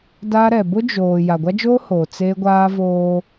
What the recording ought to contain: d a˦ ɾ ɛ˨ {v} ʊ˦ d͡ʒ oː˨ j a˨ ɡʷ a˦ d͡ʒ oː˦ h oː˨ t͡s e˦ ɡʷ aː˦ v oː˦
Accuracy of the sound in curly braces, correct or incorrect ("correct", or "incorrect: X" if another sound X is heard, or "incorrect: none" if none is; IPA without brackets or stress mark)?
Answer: incorrect: b